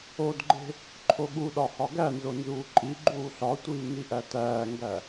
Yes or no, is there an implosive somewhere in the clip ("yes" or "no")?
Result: yes